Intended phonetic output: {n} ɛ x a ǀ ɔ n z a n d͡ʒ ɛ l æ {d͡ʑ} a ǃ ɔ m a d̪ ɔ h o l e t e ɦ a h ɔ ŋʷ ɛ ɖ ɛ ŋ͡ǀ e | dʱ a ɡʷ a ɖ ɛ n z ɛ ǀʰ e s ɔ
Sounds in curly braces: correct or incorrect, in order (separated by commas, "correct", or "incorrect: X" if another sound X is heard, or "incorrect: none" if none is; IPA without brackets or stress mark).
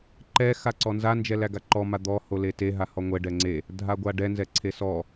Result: incorrect: ǃ, incorrect: ɡ